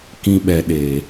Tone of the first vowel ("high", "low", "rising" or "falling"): high